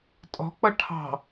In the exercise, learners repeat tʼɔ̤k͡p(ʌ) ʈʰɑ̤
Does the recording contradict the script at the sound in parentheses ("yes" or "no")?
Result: no